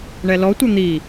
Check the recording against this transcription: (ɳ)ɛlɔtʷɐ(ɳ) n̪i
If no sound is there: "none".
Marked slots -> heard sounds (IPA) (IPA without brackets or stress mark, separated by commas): ɳ, none